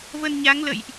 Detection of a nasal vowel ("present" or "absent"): absent